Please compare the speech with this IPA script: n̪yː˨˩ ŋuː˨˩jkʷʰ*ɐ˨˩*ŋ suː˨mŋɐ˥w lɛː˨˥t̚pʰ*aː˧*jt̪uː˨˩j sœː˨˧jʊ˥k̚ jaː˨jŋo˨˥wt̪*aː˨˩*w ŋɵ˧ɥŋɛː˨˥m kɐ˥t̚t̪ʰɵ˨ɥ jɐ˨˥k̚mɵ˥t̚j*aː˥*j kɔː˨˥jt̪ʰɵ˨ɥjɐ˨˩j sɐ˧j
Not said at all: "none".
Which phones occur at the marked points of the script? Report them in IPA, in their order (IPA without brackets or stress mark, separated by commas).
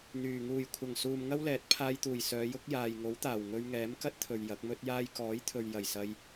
ɐ˨˩, aː˧, aː˨˩, aː˥